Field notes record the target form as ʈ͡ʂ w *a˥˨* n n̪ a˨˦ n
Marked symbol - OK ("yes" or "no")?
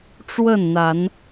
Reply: no